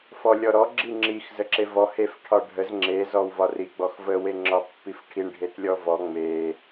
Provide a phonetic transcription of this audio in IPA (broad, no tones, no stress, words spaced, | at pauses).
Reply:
fɔlʲɔɾɔ ɡ͡ǁiŋ͡ǁix zəǁevɔ hef ʈʰɒɖʱəz ŋ͡ǁe zɔwvɒri ɡ͡bɔxvə weŋ͡ǁɒpːifʈʰiɳ ɖʱetlʲɔvɔ ŋ͡me